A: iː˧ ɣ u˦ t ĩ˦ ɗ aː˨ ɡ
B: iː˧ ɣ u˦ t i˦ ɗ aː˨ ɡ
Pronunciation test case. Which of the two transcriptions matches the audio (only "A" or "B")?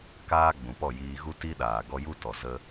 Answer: B